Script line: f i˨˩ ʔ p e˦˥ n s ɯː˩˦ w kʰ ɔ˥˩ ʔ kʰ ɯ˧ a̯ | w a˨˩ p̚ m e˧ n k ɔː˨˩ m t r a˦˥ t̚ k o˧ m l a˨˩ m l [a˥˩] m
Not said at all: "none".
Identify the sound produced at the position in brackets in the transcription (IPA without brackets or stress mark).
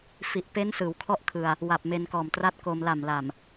a˨˩